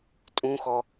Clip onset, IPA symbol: tʼ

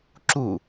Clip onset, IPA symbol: ǁ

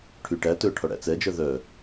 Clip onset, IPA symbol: ʈʰ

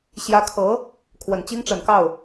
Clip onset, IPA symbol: ɕ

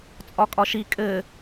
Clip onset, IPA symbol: t͡sʼ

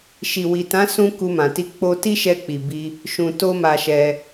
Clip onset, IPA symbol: ʃ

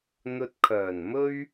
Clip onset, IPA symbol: n̪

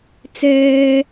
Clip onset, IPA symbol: t͡s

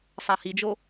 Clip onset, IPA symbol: sˤ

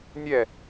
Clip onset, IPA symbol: nʲ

